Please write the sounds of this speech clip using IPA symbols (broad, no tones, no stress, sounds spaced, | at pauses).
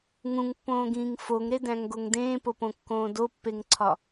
ŋ ũ ŋ pː õː ɡ ĩː ŋ f o ŋ ɾ e d æ̃ ŋ ɡ o ŋ d ẽː p o p õ kː õː d o pː e ŋ ǀʰ ɒ